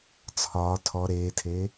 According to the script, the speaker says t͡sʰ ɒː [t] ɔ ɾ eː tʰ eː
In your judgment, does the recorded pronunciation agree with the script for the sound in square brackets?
no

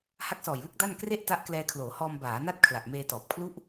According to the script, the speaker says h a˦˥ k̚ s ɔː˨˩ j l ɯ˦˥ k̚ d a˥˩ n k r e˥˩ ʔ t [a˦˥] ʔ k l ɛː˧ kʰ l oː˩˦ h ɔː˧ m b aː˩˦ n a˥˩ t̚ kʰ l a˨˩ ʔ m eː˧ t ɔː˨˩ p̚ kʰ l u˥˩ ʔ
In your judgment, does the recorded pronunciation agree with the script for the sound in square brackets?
yes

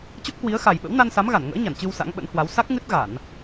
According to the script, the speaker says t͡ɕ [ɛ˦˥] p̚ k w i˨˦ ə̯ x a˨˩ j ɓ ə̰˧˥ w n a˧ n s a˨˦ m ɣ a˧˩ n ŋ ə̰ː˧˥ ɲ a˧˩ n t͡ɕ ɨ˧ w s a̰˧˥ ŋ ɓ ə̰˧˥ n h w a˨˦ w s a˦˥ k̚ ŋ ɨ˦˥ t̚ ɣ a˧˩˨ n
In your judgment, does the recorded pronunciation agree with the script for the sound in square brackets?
no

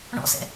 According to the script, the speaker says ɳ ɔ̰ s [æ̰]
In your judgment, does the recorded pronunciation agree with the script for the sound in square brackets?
no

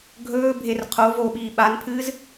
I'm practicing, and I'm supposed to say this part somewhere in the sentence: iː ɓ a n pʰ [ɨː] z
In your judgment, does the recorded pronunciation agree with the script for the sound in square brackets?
yes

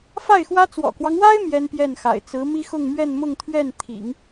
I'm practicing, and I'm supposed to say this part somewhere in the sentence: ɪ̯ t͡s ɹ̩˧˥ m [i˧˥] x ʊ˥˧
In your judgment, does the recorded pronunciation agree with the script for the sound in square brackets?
no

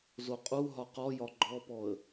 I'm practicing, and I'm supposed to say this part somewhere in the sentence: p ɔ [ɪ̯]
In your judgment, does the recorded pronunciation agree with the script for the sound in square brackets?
no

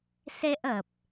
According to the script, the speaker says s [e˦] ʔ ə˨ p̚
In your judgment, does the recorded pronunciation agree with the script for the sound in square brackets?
yes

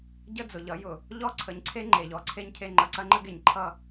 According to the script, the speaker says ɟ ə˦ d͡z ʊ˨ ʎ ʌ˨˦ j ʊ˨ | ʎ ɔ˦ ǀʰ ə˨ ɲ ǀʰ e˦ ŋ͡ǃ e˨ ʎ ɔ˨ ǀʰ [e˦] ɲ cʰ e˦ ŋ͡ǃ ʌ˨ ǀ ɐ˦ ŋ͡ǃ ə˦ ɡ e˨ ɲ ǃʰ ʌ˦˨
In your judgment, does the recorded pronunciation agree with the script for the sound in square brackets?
yes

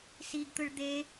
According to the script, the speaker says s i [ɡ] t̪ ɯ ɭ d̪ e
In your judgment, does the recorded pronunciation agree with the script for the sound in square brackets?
yes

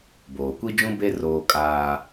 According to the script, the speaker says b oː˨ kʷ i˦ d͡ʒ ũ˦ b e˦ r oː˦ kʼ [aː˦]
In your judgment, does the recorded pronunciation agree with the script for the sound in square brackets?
yes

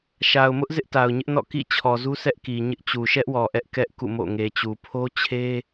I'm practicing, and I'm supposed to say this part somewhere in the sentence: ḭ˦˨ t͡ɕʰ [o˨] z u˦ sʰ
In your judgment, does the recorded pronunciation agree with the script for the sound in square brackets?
no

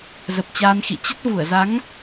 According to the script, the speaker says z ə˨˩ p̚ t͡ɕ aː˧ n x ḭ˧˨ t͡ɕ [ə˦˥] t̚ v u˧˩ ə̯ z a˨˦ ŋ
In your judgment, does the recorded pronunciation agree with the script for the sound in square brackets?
yes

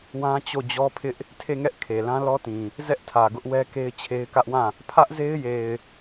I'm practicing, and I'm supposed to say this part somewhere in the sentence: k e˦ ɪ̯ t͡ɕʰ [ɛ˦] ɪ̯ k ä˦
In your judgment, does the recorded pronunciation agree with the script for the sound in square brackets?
no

